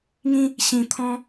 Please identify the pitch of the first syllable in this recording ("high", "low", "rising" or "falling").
high